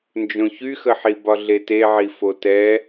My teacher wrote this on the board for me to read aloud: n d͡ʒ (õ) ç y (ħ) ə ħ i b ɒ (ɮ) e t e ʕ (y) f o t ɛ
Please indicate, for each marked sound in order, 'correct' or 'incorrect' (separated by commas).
correct, incorrect, correct, incorrect